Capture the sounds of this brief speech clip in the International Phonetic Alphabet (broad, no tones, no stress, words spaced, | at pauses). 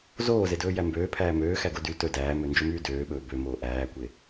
zoːzedɵːjæ mbøːpʰæː møːxæɡo dy tɵ dæːmønd͡ʒɵmyː døːɓɵː bømoː ʔæːkʷe